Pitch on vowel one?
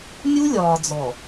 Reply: high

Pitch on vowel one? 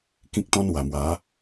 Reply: high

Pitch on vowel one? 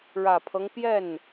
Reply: low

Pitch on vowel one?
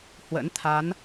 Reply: rising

